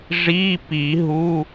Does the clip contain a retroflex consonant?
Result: yes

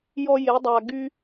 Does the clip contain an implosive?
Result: no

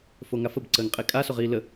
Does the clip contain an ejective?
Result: yes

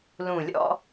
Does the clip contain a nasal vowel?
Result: yes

